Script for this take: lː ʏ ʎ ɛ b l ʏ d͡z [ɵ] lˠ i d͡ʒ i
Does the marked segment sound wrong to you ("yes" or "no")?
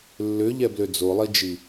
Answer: yes